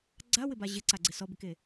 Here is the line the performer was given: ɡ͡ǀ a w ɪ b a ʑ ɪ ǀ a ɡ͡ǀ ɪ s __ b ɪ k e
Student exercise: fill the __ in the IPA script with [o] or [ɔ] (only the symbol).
ɔ